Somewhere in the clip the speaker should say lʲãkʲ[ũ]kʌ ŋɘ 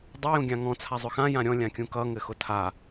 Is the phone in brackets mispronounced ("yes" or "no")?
no